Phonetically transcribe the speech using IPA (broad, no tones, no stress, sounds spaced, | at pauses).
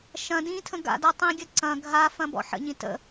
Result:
ʃ ɐ̃ d ĩ tʰ ə̃ ɡ a̰ d a tˤ ĩ ɡʲ ɐ ǀ ɐ̃ ɡʱ a f ɐ̃ b ɔ̰ ħ ə̰ ɲ ĩ t ə̰